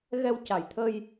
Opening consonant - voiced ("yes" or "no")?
yes